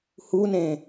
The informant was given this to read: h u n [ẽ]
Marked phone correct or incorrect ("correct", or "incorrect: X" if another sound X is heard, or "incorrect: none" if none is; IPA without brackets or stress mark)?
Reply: correct